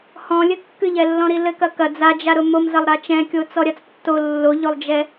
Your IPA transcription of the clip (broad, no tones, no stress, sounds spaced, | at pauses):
h ɔ̃ lʲ ɘ kː ɨ ʎ ɛ lː ɔ̃ ɾ i l ɘ k ɐ k ɐ d͡z a d͡ʒ a ɾ ʊ m o m z ɐ lˠ ɾ a t͡ʃ ɛ̃ kʲ o t͡s ɔ ɾʲ a t͡s tː o lː o ʎ o lˠ d͡ʒ ɛ